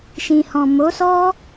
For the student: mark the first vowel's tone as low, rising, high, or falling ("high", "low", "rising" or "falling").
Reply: low